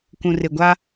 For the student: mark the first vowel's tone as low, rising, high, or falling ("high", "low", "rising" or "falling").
low